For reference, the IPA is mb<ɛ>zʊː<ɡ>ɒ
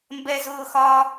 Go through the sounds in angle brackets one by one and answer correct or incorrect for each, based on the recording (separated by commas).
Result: correct, incorrect